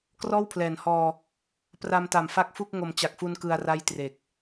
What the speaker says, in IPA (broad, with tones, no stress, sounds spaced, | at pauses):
k r ɔː˥˩ w pʰ l ɛː˩˦ n h ɔː˧ | p r a˧ m t a˨˩ m f a˦˥ k̚ f u˥˩ k̚ ŋ o˨˩ m t͡ɕ a˨˩ k̚ f u˧ n k ɯ˧ a̯ r a˥˩ j t r e˨˩ k̚